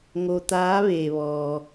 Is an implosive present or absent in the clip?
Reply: absent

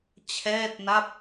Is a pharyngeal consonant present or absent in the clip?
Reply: absent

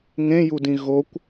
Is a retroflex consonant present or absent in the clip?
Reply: absent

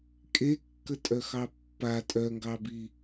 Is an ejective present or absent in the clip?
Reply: present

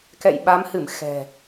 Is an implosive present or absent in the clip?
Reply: present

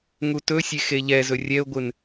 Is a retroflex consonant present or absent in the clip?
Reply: absent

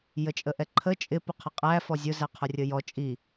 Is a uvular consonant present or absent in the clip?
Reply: present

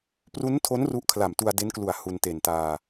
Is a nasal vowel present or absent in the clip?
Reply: absent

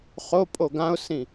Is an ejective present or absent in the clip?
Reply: present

